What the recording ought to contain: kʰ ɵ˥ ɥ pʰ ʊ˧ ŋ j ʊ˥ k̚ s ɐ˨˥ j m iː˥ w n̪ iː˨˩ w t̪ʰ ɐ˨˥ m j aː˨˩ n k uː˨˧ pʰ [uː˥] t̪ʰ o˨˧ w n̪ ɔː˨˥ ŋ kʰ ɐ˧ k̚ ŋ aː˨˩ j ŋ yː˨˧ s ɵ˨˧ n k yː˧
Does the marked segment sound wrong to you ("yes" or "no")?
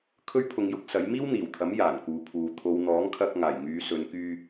yes